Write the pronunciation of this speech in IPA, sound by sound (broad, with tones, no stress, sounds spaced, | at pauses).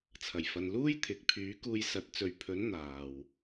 t͡sʰ ɐ˨˩ j f ɐ˨ n l uː˥ j t̪ʰ ɪ˨˥ k̚ pʰ yː˨˥ k uː˧ j s ɐ˨˥ t̚ t͡s ɵ˨ ɥ pʰ ɵ˨˥ n n̪ aː˨ w